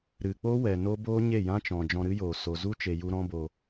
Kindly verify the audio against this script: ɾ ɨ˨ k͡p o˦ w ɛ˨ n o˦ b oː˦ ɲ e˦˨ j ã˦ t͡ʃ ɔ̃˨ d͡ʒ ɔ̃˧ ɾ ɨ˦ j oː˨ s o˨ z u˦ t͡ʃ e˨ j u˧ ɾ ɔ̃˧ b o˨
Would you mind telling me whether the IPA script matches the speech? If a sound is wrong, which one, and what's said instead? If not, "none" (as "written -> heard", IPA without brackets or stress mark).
none